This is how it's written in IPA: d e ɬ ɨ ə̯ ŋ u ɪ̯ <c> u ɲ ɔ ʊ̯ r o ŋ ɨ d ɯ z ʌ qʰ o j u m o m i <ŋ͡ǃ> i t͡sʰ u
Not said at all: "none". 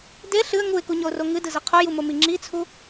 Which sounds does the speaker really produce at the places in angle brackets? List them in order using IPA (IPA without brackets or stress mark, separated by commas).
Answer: k, ŋ͡ǁ